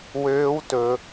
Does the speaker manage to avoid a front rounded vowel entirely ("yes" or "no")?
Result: no